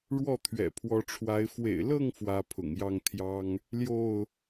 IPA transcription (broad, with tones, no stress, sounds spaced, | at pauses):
ɻ w ɔ˥˨ t̪ʰ ɥ ɛ̰˨˩ pʰ w ɔ˨˦ ʈ͡ʂʰ w a˨˦ ɪ̯ f w ḛ˨˩ ɪ̯ l ɤ˥˨ ŋ f w ä˦ pʰ ʊ̰˨˩ ŋ j ɑ˥˨ ŋ t̪ʰ j ɑ˦ ŋ | l j o˥˨ ʊ̯